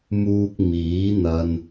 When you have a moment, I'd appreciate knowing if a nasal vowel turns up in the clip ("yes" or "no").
no